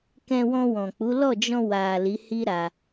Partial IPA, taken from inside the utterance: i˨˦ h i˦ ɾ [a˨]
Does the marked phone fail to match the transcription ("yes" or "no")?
yes